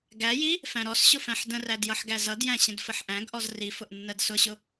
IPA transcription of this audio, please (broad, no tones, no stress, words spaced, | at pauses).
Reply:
ɡæji | fæ̃ɾɔsɕʊ fæ̃ħdə̃ræd jʌħɡæzʌdjæ̃ ɕə̃dfəħʔæ̃ɡʔɔz rifʊʔ nːɜdsʊɕʊ